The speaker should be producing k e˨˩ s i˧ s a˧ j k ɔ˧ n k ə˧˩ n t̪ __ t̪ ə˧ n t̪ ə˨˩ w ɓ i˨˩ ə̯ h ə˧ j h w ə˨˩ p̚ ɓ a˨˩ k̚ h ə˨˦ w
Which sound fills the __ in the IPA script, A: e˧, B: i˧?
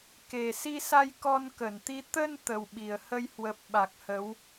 B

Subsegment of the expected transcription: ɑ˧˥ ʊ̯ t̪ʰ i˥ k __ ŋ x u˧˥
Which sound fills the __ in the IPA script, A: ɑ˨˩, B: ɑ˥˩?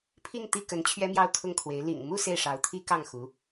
B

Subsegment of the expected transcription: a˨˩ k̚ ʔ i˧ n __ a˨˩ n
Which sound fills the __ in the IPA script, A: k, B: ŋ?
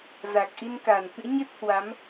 A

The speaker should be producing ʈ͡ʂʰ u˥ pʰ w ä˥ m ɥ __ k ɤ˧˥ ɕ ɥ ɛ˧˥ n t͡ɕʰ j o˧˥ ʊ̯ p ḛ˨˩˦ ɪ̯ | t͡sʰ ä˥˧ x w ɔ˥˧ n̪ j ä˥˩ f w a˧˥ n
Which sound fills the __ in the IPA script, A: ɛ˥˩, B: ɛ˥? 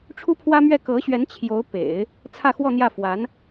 A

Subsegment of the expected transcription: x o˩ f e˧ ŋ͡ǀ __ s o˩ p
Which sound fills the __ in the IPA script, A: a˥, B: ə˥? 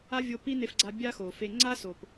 A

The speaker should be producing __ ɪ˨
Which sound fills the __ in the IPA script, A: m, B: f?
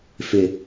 B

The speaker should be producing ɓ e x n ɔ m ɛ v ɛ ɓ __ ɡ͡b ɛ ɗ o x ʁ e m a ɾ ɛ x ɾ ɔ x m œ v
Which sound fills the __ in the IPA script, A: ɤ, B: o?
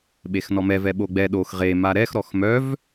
B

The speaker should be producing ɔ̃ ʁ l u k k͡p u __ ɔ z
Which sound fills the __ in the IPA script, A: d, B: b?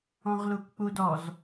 A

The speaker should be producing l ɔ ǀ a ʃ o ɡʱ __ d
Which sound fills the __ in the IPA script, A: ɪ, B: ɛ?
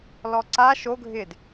A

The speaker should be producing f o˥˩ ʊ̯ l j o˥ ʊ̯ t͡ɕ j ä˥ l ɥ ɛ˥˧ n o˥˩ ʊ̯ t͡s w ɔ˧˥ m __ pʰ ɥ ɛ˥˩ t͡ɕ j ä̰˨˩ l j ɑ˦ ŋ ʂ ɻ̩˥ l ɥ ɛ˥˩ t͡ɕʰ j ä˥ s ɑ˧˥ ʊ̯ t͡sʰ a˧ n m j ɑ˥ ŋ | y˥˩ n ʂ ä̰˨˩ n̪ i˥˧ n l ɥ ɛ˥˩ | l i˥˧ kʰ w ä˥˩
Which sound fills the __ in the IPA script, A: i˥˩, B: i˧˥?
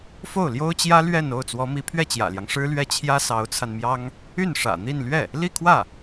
B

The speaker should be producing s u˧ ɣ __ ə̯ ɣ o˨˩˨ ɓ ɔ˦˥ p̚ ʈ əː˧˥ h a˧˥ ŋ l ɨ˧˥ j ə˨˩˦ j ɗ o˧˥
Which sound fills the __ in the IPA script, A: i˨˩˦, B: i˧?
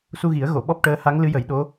A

